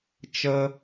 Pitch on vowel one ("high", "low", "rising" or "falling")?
high